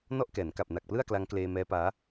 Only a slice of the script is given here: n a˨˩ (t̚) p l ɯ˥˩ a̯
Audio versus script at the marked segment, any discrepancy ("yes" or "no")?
yes